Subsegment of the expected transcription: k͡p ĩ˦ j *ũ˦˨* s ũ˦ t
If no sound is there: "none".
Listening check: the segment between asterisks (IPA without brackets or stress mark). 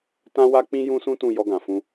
ũ˦